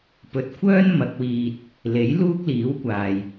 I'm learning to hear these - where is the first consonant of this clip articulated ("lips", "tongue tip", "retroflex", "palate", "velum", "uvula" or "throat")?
lips